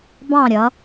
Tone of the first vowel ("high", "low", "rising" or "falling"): falling